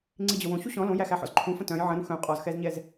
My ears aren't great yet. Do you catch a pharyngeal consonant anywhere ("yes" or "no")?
yes